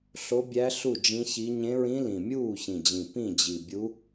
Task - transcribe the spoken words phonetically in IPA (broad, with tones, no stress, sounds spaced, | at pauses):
ɬ o˧˥ bʲ æ˧˥ ɬ u˥˩ d͡ʒ ĩ˧˥ ç i˧˥ ɲ ẽ˧˥ ɹ ĩ˧˥ l ĩ˨˩ mʲ uː˥˩ ç ĩ˨˩ d͡ʑ ĩ˨˩ p ĩ˥˩ d͡ʑ i˨˩ bʲ u˧˥